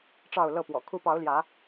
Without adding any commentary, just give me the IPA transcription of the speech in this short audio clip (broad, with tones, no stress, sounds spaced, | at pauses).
ʈ͡ʂ ɑ˥˨ ʊ̯ l ɤ˥˨ p w ɔ̰˨˩ kʰ u˨˦ p ɑ˨˦ ʊ̯ l j ä˨˦